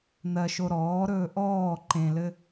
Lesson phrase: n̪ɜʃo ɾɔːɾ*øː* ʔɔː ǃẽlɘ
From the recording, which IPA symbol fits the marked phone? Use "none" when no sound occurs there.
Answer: ɵː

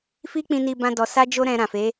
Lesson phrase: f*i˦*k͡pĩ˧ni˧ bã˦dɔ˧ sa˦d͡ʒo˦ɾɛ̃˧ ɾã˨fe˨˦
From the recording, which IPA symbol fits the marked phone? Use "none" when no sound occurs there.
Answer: i˦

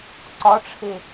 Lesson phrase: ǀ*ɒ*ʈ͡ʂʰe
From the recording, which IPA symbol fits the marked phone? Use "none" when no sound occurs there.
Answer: ɒ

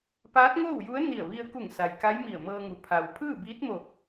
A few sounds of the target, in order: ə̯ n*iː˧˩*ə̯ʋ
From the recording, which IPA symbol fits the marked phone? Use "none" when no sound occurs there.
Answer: i˧˩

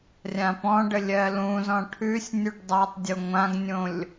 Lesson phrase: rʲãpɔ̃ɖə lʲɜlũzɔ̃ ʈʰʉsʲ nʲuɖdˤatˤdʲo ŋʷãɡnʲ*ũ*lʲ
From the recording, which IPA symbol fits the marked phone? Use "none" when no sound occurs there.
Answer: õ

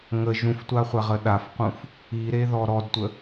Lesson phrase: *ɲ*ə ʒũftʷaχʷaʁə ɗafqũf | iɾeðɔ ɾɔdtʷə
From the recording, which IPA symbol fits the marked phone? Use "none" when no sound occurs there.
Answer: ŋ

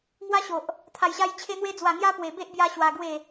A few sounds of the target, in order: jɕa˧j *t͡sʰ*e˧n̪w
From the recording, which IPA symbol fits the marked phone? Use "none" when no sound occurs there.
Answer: t͡ɕʰ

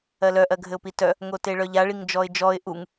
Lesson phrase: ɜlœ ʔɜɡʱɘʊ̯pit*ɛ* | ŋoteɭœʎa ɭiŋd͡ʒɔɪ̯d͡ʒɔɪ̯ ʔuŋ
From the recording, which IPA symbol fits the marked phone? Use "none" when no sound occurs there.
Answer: œ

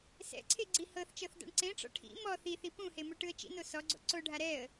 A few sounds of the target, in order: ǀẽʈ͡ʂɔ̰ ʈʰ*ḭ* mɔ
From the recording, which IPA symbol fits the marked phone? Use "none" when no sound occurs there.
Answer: ḭ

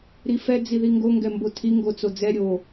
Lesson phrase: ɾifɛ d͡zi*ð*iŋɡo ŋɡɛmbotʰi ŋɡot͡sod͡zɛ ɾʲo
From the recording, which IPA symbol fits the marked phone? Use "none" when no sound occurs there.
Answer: ð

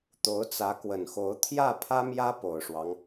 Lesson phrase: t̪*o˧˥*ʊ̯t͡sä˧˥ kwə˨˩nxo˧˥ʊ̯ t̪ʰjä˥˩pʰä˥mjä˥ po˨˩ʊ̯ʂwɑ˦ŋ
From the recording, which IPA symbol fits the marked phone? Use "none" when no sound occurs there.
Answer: o˧˥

